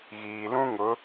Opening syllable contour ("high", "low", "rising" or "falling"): low